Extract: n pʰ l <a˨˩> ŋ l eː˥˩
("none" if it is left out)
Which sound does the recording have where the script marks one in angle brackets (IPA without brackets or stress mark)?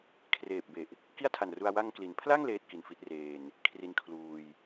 a˥˩